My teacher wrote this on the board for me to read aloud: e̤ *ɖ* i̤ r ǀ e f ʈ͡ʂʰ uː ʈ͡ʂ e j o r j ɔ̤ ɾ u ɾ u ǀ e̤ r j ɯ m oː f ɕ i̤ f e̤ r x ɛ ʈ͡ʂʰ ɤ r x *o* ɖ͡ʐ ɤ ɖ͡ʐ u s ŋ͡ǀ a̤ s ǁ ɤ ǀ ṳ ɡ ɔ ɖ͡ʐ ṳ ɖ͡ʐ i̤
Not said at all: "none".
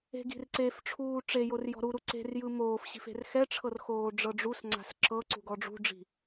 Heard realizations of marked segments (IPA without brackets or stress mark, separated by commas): ɡ, oː